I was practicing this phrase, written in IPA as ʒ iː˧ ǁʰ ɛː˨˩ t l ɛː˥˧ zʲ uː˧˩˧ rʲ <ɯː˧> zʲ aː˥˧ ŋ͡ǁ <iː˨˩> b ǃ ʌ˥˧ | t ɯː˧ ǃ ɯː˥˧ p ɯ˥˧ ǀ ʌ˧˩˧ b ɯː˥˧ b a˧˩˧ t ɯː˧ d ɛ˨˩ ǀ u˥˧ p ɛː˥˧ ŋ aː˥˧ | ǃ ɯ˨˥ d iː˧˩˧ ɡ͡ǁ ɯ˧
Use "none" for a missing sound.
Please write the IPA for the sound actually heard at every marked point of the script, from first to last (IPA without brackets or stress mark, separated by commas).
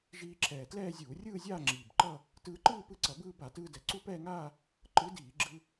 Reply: ɯː˥˧, iː˨˩